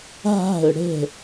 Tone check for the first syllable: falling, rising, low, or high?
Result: falling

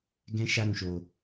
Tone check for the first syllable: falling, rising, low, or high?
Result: high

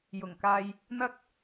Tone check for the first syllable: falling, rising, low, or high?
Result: low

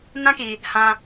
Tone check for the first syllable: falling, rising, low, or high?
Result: high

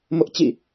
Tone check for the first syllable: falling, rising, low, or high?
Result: high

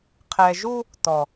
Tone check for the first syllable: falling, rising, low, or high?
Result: low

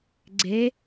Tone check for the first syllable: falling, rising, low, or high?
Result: rising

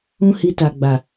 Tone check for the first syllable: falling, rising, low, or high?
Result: high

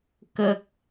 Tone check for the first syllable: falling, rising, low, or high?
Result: high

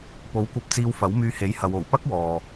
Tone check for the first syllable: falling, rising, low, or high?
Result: rising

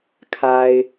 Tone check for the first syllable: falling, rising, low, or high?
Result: low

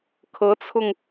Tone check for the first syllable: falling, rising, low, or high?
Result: rising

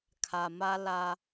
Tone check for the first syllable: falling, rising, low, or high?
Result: low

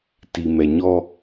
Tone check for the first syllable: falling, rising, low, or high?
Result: low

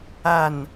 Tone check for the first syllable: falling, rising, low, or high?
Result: falling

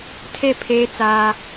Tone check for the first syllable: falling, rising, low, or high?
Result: falling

